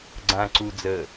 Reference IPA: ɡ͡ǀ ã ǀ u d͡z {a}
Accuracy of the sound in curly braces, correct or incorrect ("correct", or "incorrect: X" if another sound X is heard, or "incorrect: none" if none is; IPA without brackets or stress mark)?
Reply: incorrect: ə